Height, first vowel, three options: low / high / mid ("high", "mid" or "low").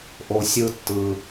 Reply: mid